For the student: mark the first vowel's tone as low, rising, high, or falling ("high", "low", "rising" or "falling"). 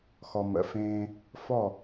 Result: low